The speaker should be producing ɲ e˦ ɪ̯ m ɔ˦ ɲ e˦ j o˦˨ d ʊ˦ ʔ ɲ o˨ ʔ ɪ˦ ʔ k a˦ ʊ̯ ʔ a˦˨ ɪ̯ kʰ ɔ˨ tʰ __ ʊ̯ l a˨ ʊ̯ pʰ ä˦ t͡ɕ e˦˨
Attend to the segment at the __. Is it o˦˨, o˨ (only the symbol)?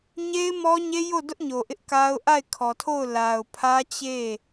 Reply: o˦˨